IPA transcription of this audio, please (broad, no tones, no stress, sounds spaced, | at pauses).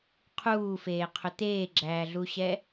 qʰ uː f eː qʰ ɵ t̪ eː ɡ͡ǁ æː ɮ u ɕ ɛ